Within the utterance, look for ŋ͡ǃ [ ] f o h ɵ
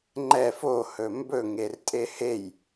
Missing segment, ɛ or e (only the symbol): ɛ